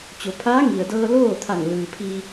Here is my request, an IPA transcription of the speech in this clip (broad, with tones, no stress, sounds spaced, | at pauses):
t͡ɕ o˩˧ pʰ aː˧˥ ŋ i˩ ə̯ d ɤː˧ l oː˥˨ t̪ʰ a˧˩ ŋ l ɯː˩ pʰ iː˧